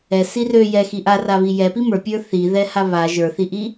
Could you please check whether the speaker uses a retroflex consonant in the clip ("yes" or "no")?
no